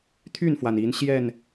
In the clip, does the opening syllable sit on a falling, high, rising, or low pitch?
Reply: falling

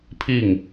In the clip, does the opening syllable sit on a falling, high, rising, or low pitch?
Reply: falling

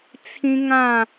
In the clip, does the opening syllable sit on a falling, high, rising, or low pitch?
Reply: high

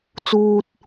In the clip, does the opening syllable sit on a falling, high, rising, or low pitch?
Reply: high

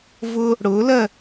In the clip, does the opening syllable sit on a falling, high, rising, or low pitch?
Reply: high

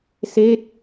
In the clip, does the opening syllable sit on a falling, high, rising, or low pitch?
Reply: falling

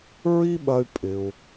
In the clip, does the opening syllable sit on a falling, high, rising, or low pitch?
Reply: high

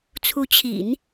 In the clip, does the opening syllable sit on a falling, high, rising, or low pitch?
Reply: rising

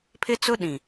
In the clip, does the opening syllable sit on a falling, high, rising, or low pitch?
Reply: high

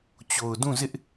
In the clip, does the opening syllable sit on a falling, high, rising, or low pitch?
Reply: low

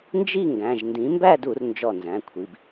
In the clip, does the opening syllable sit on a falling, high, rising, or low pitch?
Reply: falling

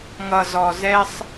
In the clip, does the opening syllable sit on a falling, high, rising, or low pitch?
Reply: low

